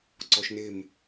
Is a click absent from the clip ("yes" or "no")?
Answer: no